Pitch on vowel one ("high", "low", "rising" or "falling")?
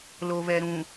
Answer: low